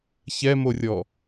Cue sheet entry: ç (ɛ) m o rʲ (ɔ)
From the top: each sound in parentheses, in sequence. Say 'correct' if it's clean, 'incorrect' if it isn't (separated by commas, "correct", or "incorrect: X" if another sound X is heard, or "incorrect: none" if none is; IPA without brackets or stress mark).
correct, correct